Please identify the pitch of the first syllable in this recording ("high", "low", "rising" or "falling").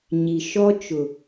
low